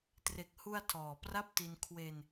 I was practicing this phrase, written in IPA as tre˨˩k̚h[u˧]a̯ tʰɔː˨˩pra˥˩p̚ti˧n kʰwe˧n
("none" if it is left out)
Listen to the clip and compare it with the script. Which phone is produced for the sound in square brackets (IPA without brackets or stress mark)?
u˧